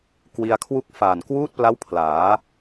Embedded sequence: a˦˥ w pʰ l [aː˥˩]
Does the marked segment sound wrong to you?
yes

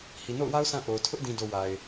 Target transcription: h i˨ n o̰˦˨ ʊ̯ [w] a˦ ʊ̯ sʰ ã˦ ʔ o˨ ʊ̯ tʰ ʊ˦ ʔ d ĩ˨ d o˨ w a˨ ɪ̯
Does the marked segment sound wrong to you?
no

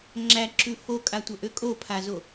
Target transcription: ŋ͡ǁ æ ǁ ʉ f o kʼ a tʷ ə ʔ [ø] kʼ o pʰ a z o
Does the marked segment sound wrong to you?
no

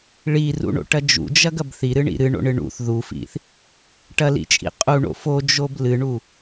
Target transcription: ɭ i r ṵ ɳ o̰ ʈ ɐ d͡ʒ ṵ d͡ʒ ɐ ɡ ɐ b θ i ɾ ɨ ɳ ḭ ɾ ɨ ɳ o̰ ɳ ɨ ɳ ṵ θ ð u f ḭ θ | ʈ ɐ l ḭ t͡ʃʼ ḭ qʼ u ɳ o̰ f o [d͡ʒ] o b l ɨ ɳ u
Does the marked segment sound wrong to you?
no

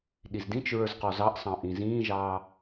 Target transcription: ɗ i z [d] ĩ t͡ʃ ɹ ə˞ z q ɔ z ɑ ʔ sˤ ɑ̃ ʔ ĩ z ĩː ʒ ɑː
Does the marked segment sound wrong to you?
no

